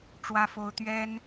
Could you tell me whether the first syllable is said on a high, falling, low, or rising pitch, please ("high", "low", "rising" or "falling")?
high